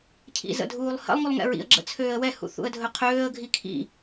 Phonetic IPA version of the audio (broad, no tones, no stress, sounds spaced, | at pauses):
cʰ ḭ z ə̰ dʱ uː lˠ h ə̰ lˠ ŋ u lˠ ŋ ɛ̰ ɹ ḭ ə̯ ɡ͡ǁ ə̰ t͡sʰ øː ə̯ w ɛ h ṵ θ ṵ ə̯ dʱ ɵ qʰ øː ə̯ ɡʱ i kʰ ḭ